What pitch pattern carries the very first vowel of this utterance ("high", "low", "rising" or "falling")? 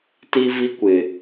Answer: high